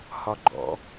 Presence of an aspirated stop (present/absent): absent